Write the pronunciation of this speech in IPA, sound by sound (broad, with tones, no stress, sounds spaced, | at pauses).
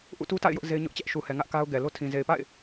ʔ ṵ˦˨ t u˦ t a̰˦˨ ɪ̯ j ʊ˦ ʔ z e˦ ɪ̯ ɲ ʊ˦ ʔ t͡ɕ ɛ˦ ʔ ʃ u˨ h ɛ˨ ŋ ä˦ ʔ k a˦ ʊ̯ ɡ ɛ˨ l o˦ tʰ ĩ˨ z e˨ ɪ̯ p a̰˦˨ ɪ̯